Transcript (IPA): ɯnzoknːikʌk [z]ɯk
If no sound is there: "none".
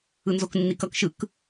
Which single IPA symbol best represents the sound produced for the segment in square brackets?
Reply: ʃ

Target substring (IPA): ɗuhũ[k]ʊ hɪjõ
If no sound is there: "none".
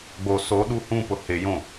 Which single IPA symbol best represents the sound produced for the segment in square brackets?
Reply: p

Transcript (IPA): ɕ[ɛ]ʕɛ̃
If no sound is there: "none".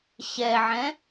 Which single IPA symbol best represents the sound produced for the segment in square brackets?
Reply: ɛ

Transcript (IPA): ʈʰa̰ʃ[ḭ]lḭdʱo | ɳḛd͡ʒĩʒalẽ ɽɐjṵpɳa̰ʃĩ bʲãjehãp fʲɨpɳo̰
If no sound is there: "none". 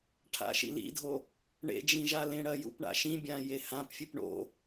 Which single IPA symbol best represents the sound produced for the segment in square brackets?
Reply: ḭ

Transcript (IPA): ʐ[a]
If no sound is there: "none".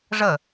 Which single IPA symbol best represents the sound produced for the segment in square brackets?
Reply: ə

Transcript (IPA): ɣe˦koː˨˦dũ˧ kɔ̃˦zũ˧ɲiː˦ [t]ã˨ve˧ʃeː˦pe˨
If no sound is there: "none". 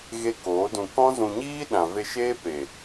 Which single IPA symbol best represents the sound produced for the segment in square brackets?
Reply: ɗ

